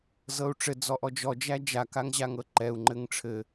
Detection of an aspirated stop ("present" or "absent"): present